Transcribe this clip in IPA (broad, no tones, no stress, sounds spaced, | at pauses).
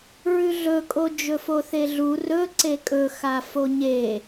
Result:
ɹ ʉ ɮ ɵ kʼ o d͡ʒ ɵ f o θ e ɮ u r ɵ ǀ e kʼ ɵ x a f o ɲ e